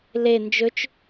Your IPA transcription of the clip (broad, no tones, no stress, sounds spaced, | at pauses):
l e n d͡ʒ ɵ t͡ʃ